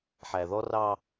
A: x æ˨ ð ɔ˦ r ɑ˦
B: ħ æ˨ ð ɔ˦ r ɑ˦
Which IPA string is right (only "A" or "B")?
B